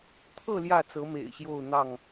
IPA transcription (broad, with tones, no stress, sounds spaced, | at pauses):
t̪ʰ ɤ˥˨ l j ä˥˨ t͡s ɤ˨˦ m ḛ˨˩ ɪ̯ ɕ j o˥˨ ʊ̯ n̪ ɑ˥˨ ŋ